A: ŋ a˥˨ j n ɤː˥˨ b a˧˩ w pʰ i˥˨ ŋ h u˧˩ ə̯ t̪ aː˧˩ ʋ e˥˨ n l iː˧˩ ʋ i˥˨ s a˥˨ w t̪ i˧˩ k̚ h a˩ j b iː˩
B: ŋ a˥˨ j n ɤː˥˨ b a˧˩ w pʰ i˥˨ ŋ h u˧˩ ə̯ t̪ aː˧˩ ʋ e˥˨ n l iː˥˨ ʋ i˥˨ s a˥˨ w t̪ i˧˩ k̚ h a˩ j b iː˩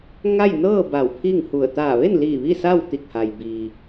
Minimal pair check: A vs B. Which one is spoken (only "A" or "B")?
A